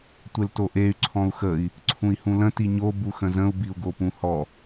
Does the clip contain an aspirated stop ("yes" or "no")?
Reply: yes